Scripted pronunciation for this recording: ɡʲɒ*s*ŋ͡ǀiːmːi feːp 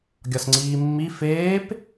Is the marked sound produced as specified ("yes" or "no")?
yes